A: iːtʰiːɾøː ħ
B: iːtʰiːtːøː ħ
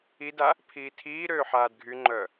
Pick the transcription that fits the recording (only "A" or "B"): A